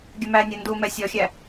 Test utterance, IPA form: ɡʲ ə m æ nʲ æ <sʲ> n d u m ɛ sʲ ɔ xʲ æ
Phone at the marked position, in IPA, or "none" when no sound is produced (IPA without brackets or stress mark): none